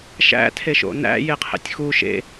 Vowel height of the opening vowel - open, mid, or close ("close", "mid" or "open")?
open